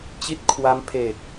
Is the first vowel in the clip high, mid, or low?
high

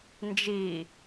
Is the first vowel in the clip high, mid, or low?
high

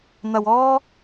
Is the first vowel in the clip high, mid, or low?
low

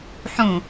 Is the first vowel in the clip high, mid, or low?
high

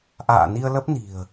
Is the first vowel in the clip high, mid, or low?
low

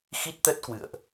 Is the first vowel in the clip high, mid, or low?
high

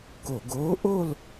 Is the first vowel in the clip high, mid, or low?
mid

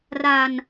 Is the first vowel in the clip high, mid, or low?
low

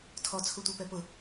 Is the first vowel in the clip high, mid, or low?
mid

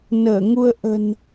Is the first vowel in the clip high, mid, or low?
mid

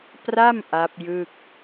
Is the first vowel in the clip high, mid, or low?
low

